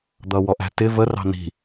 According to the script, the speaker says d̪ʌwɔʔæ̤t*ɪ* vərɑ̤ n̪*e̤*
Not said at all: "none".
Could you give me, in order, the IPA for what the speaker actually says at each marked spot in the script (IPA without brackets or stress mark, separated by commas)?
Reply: ɪ, i̤